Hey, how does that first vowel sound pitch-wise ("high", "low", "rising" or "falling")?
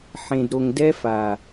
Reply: low